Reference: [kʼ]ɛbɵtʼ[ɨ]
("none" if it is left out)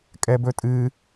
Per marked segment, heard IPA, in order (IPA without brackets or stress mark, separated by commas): kʼ, ɨ